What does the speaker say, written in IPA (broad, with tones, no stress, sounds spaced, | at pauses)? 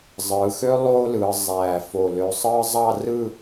zˤ ɯː˩˧ x ø˥ lˠ oː˥ l ɯː˩˧ zˤ æː˧˩ f o˧˩ l ø˧ sˤ ɯː˥ zˤ ɑ˥˧ r ɯ˥˧